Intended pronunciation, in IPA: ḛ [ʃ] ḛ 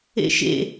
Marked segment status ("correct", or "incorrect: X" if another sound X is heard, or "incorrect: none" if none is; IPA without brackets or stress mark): correct